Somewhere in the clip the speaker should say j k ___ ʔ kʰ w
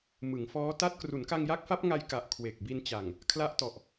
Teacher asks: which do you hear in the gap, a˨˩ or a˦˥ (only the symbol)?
a˨˩